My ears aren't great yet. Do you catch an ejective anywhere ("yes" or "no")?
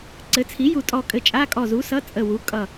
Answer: yes